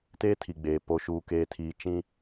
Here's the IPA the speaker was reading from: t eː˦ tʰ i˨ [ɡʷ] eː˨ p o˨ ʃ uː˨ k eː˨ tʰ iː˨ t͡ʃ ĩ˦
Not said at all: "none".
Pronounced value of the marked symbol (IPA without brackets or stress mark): ɡ͡b